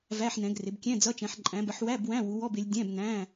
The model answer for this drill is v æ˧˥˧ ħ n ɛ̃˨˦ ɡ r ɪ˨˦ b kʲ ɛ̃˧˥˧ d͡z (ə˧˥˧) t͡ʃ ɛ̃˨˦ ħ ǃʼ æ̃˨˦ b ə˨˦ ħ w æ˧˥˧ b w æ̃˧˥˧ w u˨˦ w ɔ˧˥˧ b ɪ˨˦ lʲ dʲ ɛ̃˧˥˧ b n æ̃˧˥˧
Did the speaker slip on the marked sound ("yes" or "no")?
yes